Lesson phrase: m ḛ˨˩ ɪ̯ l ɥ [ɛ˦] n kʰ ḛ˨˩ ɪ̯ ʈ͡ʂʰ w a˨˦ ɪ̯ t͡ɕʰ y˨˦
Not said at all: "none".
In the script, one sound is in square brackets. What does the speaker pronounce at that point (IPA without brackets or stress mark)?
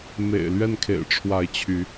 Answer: ɛ˥˨